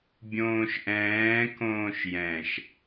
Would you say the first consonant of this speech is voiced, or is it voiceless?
voiced